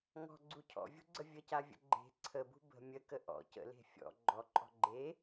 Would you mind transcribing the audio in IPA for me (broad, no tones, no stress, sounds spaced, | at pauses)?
ŋ ɔ̤ ɡ͡ǀ u cʰ ɔ̰ vʲ ṳ ɡ͡ǀ ə vʲ ə c a vʲ ə̰ ɡ͡ǃ e̤ ǀʰ ə b ṳ b ə̤ mʲ ə k ə ʔ ɔ̰ c ə̰ l e̤ fʲ ɔ̰ ɡ͡ǃ ɔ ǃʼ ɔ̤ ɡ͡ǃ e